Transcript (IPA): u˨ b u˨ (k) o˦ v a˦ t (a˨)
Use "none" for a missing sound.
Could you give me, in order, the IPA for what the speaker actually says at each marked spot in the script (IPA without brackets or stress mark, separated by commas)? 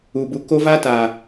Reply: k, a˨